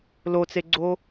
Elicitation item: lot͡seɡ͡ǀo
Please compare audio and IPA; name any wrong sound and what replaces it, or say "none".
none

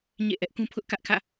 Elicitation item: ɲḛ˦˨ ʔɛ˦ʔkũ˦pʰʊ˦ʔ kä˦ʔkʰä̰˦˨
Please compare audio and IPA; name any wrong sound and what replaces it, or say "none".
none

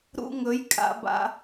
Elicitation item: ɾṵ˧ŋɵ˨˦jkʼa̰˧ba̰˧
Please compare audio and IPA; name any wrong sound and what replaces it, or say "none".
none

